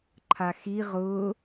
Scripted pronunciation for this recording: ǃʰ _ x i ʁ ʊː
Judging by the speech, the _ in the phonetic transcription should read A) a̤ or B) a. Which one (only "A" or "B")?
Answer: B